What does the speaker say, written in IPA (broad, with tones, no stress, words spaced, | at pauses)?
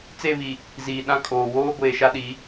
t͡se˦˨βi˨ | ziː˨ɗã˦kʼoː˨ woː˦ɡʷeː˨ʃa˦ ɗi˨˦